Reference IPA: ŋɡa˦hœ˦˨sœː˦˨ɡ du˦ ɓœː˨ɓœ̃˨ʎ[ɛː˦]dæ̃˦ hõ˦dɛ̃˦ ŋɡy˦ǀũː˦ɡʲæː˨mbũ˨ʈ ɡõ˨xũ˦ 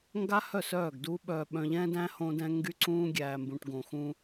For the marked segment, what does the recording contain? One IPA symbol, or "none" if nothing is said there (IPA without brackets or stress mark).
ɛ̃ː˦